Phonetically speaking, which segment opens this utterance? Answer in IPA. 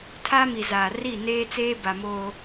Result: tʰ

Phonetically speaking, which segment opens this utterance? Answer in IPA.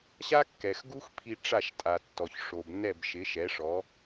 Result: ɕ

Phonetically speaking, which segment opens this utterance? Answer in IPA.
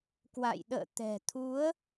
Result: k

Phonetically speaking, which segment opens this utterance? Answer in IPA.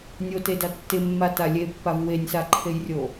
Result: nʲ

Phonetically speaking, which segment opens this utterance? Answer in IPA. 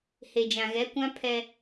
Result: h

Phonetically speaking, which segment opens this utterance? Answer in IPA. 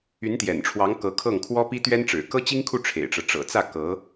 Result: y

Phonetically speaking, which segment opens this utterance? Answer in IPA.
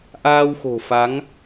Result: ʔ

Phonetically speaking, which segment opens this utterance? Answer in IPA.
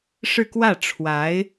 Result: ʂ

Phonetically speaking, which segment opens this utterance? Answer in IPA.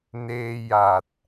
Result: n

